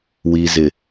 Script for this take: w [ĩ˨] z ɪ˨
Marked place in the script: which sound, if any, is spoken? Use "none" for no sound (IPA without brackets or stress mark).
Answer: i˨